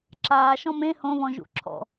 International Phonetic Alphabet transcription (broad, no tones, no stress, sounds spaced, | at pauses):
ǁ aː ʃ ɔ̃ m ẽ h õ β ɔ̃ ʒ ṵ ǁʰ ɔ̰